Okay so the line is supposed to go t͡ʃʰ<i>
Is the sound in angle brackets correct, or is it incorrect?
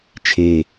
incorrect